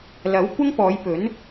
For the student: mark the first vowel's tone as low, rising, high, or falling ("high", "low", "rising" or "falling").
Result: rising